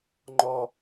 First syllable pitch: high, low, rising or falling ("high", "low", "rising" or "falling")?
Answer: high